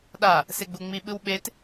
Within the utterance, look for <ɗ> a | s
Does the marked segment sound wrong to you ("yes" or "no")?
no